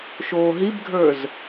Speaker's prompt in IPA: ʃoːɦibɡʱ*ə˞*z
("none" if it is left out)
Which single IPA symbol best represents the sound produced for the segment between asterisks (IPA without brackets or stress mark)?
ə˞